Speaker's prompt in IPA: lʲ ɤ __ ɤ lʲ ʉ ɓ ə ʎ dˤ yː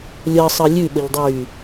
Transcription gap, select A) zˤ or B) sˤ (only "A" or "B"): B